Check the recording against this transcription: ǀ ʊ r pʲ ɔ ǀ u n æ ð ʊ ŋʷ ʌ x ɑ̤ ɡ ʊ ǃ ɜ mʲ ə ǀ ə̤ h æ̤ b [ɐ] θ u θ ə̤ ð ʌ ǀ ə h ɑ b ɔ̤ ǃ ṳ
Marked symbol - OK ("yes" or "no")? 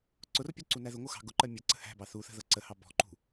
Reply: no